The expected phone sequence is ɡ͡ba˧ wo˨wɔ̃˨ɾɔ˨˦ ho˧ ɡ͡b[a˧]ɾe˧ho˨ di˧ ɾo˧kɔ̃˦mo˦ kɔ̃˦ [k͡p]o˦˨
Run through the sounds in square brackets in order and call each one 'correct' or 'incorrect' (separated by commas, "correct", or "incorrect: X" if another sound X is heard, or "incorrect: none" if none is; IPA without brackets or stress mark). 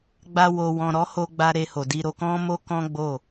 correct, incorrect: ɡ͡b